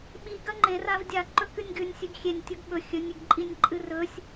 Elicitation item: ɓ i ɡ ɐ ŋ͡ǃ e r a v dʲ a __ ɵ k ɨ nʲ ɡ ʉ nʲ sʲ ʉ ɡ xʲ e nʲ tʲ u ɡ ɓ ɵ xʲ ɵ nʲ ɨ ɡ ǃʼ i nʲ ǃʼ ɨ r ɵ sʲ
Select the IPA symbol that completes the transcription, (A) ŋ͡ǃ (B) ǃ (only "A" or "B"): B